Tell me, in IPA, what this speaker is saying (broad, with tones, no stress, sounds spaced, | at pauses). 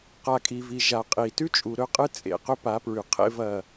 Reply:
q a˨ kʼ i˨ v i˨ ʒ a˨ qʼ i˨ t ʉ˦ t͡ʃʼ u˨ ɾ ɵ˦ qʼ ɨ˦ t͡sʼ ḛ˨ q ɵ˦ p a˨˦ p ɹ ʉ˨ qʰ ḛ˦ v ɐ˦˨